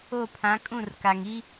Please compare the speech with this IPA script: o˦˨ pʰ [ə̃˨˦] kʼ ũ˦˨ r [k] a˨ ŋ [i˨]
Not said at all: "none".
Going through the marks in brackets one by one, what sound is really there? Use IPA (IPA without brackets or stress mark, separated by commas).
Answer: ã˨˦, k, i˦